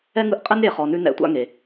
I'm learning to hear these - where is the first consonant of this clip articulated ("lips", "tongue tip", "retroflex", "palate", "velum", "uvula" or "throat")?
velum